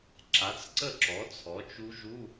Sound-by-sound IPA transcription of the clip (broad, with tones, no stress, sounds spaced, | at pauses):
ǁ a˩˥ t͡s ǀ ə˥˩ ǁ ɔ˩˥ t͡sʰ ɔ˩˥ t͡ʃ u˦˥ ʒ u˧˥˧